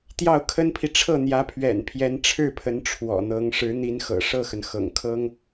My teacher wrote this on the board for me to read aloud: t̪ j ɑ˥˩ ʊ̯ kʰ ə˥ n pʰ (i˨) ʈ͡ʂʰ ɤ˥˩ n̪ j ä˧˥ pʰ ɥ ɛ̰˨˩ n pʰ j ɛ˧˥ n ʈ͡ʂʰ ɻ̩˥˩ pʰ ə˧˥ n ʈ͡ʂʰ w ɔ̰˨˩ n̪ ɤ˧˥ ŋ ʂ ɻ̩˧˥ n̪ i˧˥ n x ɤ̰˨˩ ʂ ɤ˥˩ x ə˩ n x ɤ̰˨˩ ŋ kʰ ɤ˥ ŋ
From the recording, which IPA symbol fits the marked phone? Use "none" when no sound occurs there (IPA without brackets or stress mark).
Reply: i˨